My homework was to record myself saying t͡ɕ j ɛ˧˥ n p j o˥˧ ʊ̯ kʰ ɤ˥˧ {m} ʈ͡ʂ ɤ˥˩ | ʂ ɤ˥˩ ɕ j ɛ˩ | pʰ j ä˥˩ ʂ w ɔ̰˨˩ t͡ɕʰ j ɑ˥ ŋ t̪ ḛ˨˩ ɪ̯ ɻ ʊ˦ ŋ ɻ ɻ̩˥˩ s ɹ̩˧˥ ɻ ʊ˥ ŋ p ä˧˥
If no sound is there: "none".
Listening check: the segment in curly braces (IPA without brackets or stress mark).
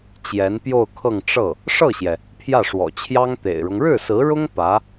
ŋ